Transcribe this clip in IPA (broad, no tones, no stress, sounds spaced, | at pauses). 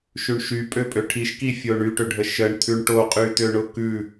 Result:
ʃ ʉ ɳ ʃ y pʼ ø pʼ ø ʈʰ i ʃ k i fʲ o ɳ y ʈ ø ɖʱ ə ʃ ə ɳ t̪ʰ ʉ ɳ ʈ o qʼ y t̪ ø ɳ ʊ k ʉ